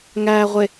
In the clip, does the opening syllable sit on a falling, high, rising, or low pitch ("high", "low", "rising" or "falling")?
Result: low